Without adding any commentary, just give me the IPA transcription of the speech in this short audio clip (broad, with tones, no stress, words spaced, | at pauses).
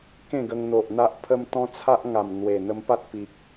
kẽ˥˧ɡə˧ŋn̪o˨ʔ n̪a˦ʔpʰə˦m t̪ɔ̃˦t͡sʰa˦ʔŋa˨˩m n̪we˨˩ n̪ə˧mpa˦t̚pi˨k̚